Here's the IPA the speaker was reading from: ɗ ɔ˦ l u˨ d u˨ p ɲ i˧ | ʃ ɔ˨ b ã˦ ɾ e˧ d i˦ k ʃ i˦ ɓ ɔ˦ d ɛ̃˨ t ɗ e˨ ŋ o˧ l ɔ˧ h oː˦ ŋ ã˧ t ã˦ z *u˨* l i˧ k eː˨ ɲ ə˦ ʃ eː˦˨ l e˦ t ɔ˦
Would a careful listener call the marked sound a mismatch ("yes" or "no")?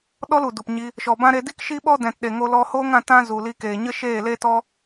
no